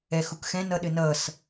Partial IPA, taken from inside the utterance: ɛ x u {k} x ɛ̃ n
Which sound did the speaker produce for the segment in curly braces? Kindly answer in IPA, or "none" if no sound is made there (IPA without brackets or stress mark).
k